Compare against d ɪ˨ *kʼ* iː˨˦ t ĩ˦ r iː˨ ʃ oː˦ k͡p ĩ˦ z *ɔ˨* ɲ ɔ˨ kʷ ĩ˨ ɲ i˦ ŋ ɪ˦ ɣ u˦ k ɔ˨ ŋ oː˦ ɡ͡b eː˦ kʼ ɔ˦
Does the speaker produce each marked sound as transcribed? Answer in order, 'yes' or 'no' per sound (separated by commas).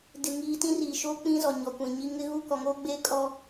no, yes